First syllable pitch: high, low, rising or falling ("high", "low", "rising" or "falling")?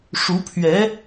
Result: rising